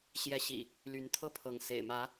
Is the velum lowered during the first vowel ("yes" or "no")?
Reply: no